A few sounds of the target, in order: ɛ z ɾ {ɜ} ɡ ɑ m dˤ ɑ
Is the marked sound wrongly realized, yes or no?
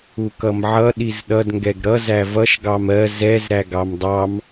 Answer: yes